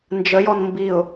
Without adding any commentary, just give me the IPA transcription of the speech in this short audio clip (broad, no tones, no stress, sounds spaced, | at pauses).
n d͡ʒ ə j ɔ n m b i ʊ̯